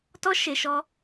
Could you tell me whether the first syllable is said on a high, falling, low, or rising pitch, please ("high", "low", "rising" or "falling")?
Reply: high